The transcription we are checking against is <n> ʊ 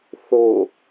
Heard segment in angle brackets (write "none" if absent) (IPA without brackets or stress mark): θ